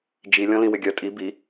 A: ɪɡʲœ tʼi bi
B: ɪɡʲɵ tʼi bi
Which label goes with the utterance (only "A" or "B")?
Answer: A